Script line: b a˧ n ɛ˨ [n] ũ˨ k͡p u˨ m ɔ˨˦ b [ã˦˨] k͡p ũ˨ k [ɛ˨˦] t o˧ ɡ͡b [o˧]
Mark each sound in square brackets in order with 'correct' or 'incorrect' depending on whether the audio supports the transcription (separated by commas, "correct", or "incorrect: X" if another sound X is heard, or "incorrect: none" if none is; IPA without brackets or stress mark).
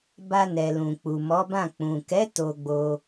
incorrect: l, correct, correct, correct